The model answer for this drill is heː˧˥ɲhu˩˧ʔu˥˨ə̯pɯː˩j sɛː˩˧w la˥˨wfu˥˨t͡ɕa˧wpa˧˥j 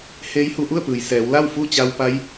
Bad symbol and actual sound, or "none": ɲ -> j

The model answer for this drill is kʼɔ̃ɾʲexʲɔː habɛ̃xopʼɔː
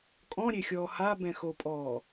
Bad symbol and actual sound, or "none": none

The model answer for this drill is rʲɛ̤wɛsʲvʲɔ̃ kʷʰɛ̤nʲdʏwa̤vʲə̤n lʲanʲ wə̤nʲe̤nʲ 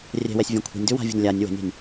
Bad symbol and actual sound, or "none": e̤ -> ɛ̤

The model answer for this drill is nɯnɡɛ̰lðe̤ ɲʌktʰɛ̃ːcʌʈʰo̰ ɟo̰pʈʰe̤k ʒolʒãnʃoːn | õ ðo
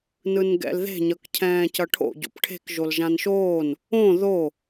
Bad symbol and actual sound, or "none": tʰ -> cʰ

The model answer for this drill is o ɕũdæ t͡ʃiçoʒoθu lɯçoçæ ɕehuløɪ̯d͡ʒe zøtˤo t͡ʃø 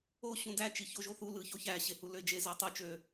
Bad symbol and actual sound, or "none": none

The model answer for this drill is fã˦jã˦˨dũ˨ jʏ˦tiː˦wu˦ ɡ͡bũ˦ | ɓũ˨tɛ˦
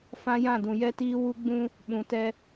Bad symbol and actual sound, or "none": ʏ˦ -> ɛ˦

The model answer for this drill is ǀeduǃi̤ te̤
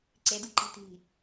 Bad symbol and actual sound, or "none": e̤ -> i̤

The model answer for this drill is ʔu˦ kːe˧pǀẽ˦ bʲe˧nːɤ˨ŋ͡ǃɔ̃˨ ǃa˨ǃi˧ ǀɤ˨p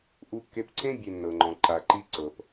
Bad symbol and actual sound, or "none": none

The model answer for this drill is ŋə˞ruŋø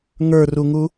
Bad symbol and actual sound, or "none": ø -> u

